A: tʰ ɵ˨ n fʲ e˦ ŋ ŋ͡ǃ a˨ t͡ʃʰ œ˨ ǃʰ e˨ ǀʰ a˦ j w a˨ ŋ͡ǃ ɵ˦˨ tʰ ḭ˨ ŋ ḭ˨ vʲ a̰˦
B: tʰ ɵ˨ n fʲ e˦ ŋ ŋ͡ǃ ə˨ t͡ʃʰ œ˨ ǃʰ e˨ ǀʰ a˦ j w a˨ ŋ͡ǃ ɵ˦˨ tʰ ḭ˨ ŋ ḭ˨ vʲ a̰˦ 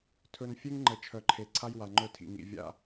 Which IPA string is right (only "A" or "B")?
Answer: B